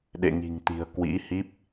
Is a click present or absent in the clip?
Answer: absent